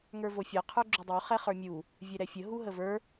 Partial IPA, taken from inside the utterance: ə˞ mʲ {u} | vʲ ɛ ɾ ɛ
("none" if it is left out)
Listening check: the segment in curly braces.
u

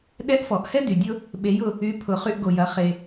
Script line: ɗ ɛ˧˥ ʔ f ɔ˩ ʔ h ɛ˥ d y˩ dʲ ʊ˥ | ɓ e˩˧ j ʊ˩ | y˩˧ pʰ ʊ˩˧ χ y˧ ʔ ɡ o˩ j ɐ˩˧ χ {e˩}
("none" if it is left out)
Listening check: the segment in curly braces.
e˩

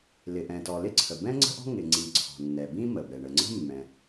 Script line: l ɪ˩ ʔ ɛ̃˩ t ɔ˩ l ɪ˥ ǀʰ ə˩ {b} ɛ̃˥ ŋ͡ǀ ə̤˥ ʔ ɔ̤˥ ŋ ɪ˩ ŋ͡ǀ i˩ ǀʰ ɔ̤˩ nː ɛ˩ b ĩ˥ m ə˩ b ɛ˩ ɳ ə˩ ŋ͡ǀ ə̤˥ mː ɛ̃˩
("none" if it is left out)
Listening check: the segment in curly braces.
b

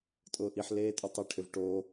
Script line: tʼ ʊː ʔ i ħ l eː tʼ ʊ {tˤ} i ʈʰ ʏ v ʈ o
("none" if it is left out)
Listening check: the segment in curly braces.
tˤ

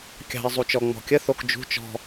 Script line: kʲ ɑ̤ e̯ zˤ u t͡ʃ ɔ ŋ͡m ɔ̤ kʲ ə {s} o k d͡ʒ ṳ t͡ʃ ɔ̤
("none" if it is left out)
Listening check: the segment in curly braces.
θ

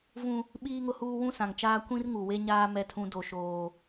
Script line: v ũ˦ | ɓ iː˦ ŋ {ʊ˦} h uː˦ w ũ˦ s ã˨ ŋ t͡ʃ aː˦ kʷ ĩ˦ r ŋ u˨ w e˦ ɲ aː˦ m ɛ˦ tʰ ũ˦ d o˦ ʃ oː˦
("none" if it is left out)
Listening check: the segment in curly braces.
ʊ˦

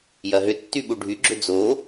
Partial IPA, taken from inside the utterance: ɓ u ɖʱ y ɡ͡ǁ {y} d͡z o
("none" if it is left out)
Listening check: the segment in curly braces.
ʏ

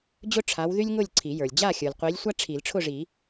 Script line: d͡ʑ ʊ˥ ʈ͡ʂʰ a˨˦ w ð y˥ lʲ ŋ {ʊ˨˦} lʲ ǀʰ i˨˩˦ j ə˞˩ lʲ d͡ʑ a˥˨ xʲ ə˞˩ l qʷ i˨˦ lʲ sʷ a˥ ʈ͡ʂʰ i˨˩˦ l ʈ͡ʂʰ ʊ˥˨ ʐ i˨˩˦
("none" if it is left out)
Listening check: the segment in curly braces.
ʊ˥˨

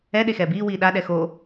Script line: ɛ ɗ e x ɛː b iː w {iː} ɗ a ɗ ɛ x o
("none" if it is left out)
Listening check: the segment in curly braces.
iː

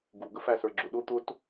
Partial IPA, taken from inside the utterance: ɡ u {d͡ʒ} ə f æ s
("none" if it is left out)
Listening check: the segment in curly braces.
ɡ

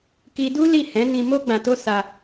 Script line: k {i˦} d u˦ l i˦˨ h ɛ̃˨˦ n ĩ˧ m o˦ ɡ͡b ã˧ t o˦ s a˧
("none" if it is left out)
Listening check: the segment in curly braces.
i˦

